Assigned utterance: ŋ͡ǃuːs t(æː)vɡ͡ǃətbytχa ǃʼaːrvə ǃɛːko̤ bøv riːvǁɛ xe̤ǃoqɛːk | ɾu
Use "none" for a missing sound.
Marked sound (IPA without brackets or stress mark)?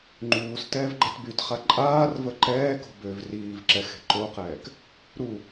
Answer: ɛː